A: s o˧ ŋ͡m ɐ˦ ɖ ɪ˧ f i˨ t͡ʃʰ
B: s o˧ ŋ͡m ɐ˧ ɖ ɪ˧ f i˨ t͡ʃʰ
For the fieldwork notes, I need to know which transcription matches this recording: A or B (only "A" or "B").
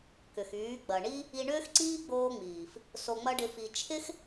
A